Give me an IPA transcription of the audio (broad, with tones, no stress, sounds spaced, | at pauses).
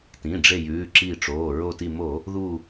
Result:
t ĩ˩˧˩ ɖ͡ʐ e˧˩ j ʉː˩˧˩ ǁ i˧˩ ʈ͡ʂ oː˩˧˩ ɹ o˧˩ t i˧˩ m o˧˩˧ | ð u˧˩